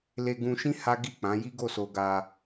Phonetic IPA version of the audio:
l e˧ ɡ ũ˧ ʃ ĩ˦ h a˦ ɡ i˦˨ k͡p ã˨˦ j i˦ ɡ o˦˨ s o˧ ɡ a˧

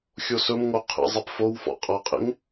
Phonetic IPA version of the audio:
xʲ o s ɵ m ŋ o qʰ ḛ zˤ e p f o w f ɔ̰ qʼ ʌ qʼ ḛ ŋ

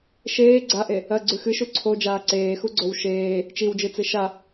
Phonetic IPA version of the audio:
ʃ eː ɡ͡ǀ a ʔ e | ɐ ɡ͡ǀ ʉ x ɨ ʃ u ǀʰ o d͡ʒ aː ǀ eː x u ɡ͡ǀ o w ʃ eː | t͡ʃ i w d͡ʒ ɨ t͡s ɨ ʃ a

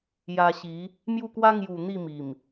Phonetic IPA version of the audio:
j a˧ ɕ i˨˦ | m j u˥˧ k w a˦ ŋ j u˨˩ n̪ i˥˧ m i˨˩ m

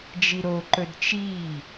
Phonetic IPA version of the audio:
d͡ʒ i ɾ o ǃ ɵ d t͡ʃ iː

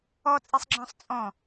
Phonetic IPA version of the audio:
ɔ t͡sʼ i sˤ ɡ͡ǁ ɔ̃ sˤ t͡sʼ ɔ̃

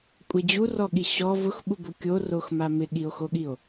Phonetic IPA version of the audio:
kʷʼ e d͡ʑ u r ɔ ɠ i ɕ ɔ v ʊ x ɓ u b o kʲ o r o x m a m ɪ ɠ i o̯ x o ɠ i o̯

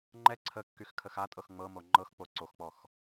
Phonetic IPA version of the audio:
ŋ͡ǃ ɛ ǀʰ ə kː y x kʰ ə x a tʼ ɤ x ŋ͡m ɤ m o ŋ͡ǃ ɤ x k͡p o ǀ o x k͡p ɔ x

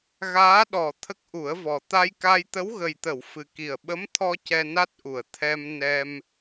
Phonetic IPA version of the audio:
ɣ aː˧˥ ɗ ɔ˨˩ t̪ʰ ə˦˥ k̚ ʔ u˨˩˦ ə̯ v ɔ˨˩ t̪ a˧ j k a˧ j t̪ ə˧˥ w ɣ ə˨˩ j t̪ ə˨˩˨ w f ɨ˨˩ k i˨˩ ə̯ ɓ ə˧˥ m t̪ʰ ɔ˧ c ɛ˧ n a˦˥ t̚ ʔ u˨˩˨ ə̯ t̪ʰ ɛ˧ m n ɛ˧ m

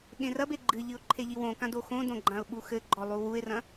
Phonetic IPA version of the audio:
ɠ ẽ r ɐ b e ɡ͡ǃ ɨ ʎ ɨ ʊ̯ ǃʰ e ʎ i w õ k ã d o x õ d õ ɡ͡ǃ ã ʊ̯ ɓ u x ɘ ɡ͡ǃ ɔ lˠ u w u ɪ̯ r ɐ̃

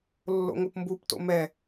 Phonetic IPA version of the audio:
lː o̰ ŋ o p m b u p t o̰ m ɛ

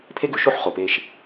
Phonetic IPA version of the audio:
pʰ e˥ ɡ ʉ˩˧ ʃ o˥ ħ χ o˩ p e˧ ʃ

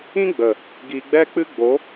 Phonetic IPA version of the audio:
ĩ˦ ɡ͡b ə˨ | ɡ i˧ ɡ͡b ɛ˦ k͡p ɨ˦ ɡ͡b o˨˦

